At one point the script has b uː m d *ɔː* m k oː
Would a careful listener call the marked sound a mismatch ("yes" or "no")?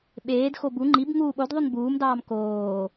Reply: yes